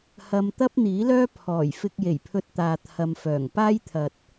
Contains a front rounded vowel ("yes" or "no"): yes